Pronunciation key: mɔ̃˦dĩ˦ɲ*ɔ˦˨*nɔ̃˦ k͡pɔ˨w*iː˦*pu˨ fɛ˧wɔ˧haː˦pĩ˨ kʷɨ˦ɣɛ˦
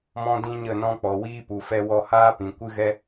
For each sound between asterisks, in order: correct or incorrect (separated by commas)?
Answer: incorrect, correct